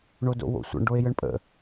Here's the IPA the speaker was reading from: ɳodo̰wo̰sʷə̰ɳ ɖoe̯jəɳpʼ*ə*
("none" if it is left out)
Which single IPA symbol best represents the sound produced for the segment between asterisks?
ə̰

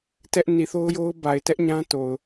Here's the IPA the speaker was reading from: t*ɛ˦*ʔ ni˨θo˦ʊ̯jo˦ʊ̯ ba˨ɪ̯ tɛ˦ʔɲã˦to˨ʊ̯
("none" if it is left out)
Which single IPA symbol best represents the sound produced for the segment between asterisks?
ɛ˦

